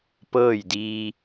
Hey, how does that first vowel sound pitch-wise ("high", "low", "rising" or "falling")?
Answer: falling